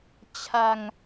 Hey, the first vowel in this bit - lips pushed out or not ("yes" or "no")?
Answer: no